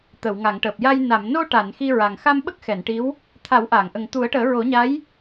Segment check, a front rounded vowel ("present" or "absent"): absent